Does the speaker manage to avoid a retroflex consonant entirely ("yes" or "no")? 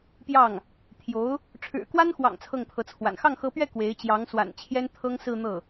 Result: no